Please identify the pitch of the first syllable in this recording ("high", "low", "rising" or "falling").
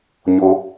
high